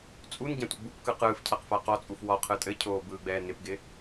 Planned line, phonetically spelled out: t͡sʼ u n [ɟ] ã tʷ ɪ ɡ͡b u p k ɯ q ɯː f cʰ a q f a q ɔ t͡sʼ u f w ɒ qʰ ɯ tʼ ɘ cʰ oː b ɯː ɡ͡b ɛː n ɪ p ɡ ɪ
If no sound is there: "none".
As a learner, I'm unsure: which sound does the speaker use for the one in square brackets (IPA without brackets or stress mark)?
ɟ